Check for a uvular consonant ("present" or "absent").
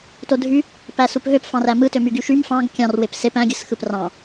absent